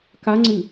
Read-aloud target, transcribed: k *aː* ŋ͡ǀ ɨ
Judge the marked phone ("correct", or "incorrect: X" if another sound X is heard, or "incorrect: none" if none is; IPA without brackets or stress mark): incorrect: a